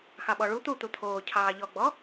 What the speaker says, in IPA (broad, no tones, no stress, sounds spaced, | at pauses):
x ɑ ɓ ɔ ɭ u t̪ u t̪ u t̪ʰ oː cʰ ɑː ʎ ɔ ɡ͡b ɔ